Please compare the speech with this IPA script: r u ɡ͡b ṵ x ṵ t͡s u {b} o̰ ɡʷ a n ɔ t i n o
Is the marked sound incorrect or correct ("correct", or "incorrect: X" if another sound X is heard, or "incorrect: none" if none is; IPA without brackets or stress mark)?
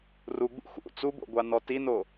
correct